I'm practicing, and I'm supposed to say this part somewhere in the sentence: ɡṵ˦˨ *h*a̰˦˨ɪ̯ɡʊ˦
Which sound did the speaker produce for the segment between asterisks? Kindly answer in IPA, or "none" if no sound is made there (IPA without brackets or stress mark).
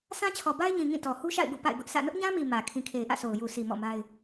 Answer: p